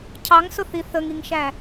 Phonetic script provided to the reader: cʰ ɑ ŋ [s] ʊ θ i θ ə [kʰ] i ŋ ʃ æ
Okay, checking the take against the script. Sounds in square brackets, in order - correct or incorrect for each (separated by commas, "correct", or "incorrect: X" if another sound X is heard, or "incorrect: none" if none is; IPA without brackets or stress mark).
correct, incorrect: ŋ